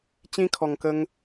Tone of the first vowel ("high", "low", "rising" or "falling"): high